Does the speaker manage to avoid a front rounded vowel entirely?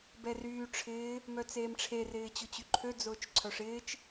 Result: no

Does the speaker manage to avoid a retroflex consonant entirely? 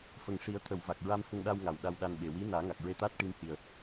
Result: no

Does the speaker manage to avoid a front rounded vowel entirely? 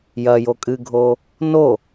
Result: yes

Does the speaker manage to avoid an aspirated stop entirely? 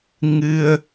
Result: yes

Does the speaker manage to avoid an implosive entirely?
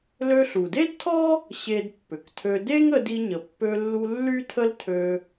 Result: yes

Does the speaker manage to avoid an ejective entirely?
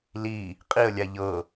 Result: no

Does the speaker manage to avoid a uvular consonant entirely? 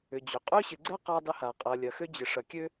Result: no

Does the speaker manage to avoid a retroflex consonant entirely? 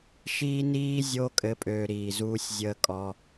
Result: yes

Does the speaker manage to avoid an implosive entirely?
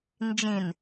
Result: yes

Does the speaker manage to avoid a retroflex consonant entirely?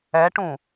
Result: no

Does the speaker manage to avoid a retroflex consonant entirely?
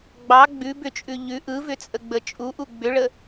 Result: no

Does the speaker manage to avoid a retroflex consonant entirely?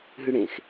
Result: no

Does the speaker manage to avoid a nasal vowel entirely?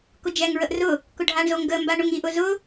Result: yes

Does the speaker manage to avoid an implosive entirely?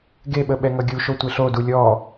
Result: no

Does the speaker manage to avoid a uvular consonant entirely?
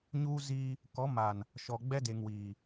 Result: yes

